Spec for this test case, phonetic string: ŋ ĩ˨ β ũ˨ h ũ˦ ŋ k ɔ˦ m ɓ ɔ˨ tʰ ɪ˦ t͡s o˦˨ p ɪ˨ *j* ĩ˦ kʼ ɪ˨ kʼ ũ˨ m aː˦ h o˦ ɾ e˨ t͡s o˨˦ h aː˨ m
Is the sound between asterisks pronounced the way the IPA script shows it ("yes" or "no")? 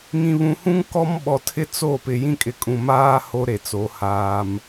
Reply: yes